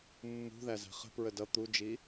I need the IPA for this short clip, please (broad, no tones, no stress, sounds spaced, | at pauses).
mː ṳ ð æ z æ̤ χ ə̤ p ɹ ə d ʌ t̪ u d͡ʒ i